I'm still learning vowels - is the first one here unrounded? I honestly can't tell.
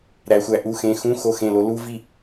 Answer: yes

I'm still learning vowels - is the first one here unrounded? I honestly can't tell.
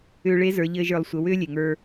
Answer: no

